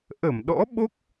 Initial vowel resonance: oral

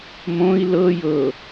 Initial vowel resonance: nasal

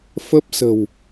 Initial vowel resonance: oral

